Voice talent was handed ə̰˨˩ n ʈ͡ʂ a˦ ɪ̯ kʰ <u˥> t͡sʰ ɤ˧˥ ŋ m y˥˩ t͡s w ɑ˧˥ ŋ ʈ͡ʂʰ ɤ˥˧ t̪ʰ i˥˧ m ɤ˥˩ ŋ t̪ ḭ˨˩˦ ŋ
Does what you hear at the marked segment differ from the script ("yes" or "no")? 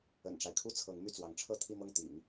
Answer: no